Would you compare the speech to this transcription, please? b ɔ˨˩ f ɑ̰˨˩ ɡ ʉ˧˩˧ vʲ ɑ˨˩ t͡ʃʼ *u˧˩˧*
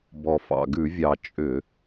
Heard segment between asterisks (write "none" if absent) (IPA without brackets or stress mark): ʏ˧˩˧